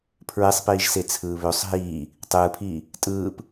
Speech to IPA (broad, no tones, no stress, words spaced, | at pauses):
pʰɹesˤpiːʒse t͡sʰɯːβøsˤ ɦiː | tˤɯːpʰiː | tʼɯːp